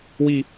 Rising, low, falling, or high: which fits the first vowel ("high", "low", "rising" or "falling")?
falling